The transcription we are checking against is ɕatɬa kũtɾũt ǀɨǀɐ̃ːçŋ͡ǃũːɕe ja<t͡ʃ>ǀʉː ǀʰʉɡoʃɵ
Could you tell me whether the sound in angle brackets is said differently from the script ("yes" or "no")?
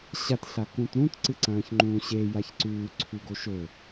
yes